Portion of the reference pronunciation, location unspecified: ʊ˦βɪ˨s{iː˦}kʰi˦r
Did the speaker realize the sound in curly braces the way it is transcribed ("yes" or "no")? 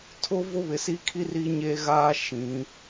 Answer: no